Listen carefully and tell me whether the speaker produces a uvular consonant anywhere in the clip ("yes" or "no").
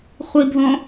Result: yes